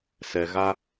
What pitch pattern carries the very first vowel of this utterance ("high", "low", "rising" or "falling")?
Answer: low